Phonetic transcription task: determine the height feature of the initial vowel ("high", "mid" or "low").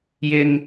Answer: high